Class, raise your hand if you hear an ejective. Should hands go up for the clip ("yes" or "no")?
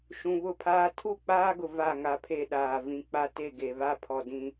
no